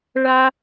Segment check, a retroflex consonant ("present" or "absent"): present